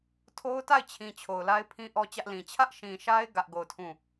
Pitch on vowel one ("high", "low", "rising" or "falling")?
high